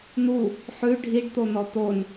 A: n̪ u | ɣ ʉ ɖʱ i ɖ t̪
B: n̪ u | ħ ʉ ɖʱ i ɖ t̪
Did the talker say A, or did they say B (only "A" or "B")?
B